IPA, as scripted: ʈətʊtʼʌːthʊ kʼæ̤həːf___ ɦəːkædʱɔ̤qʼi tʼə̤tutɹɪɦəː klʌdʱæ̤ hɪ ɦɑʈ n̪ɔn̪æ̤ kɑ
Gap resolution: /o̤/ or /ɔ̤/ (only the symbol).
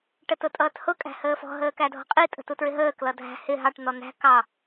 ɔ̤